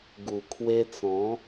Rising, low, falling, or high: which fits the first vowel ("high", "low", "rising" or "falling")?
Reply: low